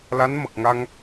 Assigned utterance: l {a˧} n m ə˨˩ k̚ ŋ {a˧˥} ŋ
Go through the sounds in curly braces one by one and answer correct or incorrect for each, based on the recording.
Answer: incorrect, incorrect

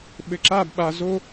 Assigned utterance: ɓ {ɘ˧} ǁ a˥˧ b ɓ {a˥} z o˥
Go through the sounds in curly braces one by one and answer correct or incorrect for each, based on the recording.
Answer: correct, incorrect

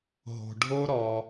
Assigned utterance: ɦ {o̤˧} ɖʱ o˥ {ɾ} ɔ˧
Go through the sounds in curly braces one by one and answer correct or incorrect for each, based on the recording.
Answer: correct, correct

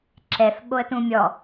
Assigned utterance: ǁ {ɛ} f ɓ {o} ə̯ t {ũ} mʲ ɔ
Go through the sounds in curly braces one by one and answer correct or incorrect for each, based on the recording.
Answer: correct, correct, correct

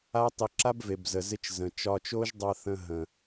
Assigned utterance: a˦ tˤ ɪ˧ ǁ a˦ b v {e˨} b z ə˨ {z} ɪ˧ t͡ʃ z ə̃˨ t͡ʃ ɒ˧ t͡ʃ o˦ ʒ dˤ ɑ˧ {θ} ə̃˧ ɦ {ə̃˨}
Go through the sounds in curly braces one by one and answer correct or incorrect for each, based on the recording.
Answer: correct, correct, correct, correct

